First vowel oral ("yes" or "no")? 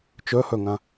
yes